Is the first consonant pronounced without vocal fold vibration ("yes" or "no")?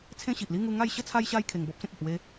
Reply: yes